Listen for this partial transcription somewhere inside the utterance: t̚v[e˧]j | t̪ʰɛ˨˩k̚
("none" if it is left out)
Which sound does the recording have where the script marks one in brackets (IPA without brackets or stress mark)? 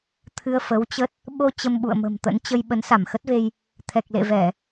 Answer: e˧